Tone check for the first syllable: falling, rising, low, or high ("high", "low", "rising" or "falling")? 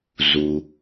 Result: low